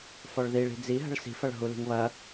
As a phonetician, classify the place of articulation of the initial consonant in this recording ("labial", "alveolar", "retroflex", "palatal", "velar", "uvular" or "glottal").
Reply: labial